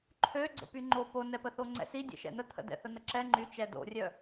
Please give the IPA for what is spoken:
ǃʰ ø ɡ͡ǀ ə̰ p y ŋ͡ǃ o p o n ɛ p ə θ o ŋ͡ǀ ɛ̰ s i dʲ ɛ̰ ʃ ɛ̰ n̪ ə t̪ʰ ə̰ d ɛ̰ θ ə n̪ ə ǁ ɛ ŋ͡ǃ y t͡ʃ ɛ d o̰ rʲ œ

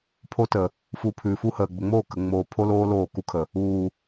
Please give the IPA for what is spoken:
pʰ o˦ t ə˨ | f u˧ pʰ ʉ˨ f u˦ h əː˨ ɡ͡b ə˨ ŋ͡m oː˦˨ k ə˨ ŋ͡m oː˨ pʰ o˦ l oː˦ l oː˦˨ k u˦ kʰ ə˨ | uː˨

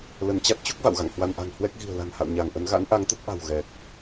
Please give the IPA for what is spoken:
l ə˧˩ n t͡ɕ a˦˥ t̚ t͡ɕ u˦˥ k̚ v a̰˧˨ w ɣ a̰˧˨ ŋ h w a˧ n ʔ a̤˨˩ ŋ h w ɛ˦˥ k̚ ɣ i̤˨˩ ə̯ l a̤˨˩ n h a̰˧˨ w ɲ a˧˩ ŋ ʔ ə˨˦ n ɣ a̰˧˥ n ʔ a˨˦ ŋ t̪ ə˦˥ t̚ ʔ a̤˨˩ w ɣ ɛ˨˩ k̚

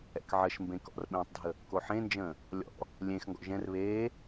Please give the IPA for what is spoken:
ɛ̰ k ʕ ə ʃ m b ẽ k ɔ̰ r ɓ ẽː tˤ dʱ ə | k o ħ ẽ n d͡ʒ ə̃ː | lʲ ɔ̰ | lʲ ẽ x ŋ ɡ ɔ̰ ʒ ɛ̃ r β eː

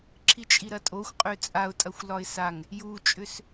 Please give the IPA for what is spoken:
ǁʰ i t͡ʃʼ i ɾ ɐ tʼ o xʷ qʼ ø t͡sʼ a ʊ̯ tʼ ɐ xʷ l ɒ ɪ̯ s a ŋ | j u t͡ʃʼ ʏ s

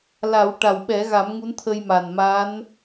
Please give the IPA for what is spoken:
l a˨˩˦ w ʈ a˨˩ w ɓ ɛ˨˩˦ ɣ a˨˩˦ m ŋ u˧˥ n t̪ʰ ə˧ j m a˨˩ n m a˧˥ n

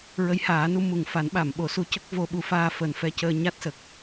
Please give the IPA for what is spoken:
ɹ ə˧˥ j h aː˨˩˦ n u˧˥ m u˨˩ ŋ f a˨˩˦ n ɓ a˨˩˨ m ɓ o˨˩˦ s u˧˥ c ə˦˥ k̚ v o˧ ɓ u˧ f aː˧ f əː˨˩ n f ɛ˧ c əː˧ ɲ a˦˥ t̚ s ə˨˩ k̚

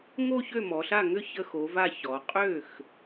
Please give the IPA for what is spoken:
ŋ o˥˧ ç ø˥˩ m ɔ˩˧ ɬ a˥˩ ŋ ʏ˥˩ ç ə˧˩ x o˩˧ v a˧˩ ç ɔ˩˧ qʼ ø˥˩ x

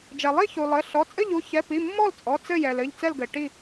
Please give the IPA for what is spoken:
d͡ʒ ɛ˩ lˠ i˥˨ ç u˩ lˠ ɘ˩˧˩ ɬ ɔ˩˧˩ t͡sʼ ɘ˥˨ ʎ u˥˨ ç ɛ˩˧˩ p i˩˧˩ mː ɔ˥˨ l t͡sʼ ɔ˩˧˩ t͡s ɘ˥˨ j ɛ˩ l ɘ˩˧˩ ʎ t͡s ɛ˥˨ l ɡ ɘ˩ ʈ i˥˨

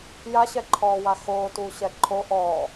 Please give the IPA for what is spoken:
j a ɕ ɛ ǃʰ ɔː w a x oː t u ɕ ɛ ǃʰ o ʔ ɔː

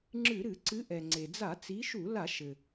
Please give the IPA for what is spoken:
ŋ͡ǁ ɨ˧˩˧ ɾ ɨ˧˩˧ ǀ ɨ˨˦ ʔ ɛ˩ ŋ͡ǀ e˩ d͡z a˧˩˧ t͡s i˨˦ ʃ u˧˩˧ l a˧˩˧ ʃ ɘ˩

